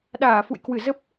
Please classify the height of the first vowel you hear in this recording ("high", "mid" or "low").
low